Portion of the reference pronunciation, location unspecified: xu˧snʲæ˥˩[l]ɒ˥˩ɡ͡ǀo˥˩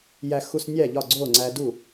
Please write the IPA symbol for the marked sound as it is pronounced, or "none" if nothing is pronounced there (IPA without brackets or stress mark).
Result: ʎ